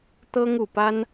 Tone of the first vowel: high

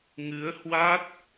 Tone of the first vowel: rising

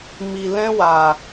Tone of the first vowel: low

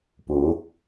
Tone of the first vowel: rising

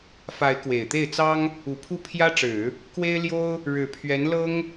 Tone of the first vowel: rising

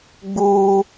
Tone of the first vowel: high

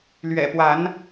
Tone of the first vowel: low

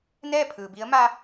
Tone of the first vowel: falling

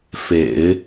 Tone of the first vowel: low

